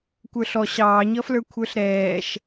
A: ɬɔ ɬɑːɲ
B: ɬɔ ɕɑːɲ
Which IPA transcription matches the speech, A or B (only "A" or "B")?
B